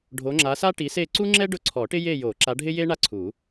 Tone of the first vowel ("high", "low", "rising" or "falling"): rising